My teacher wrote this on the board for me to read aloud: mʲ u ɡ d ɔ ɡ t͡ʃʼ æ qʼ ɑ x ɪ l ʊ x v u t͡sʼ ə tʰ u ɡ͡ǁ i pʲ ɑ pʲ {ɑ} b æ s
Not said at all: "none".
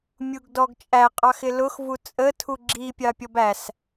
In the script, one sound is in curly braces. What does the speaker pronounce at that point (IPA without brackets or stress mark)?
ɔ